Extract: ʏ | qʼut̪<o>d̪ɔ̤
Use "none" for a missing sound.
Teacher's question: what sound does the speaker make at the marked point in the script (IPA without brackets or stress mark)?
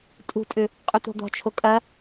o̤